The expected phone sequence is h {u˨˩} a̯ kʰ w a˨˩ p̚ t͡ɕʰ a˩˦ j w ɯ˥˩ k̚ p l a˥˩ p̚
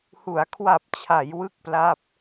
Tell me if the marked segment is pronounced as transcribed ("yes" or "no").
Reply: no